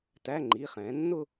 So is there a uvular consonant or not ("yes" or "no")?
yes